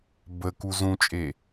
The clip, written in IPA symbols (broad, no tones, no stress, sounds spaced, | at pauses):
b ə k u z ũ t͡ʃʼ e